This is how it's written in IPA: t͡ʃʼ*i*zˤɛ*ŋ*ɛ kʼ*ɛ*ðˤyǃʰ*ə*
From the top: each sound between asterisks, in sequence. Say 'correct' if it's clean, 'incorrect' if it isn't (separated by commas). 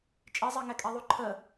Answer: correct, correct, correct, correct